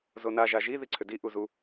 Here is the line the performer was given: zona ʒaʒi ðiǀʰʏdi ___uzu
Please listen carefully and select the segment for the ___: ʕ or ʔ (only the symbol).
ʔ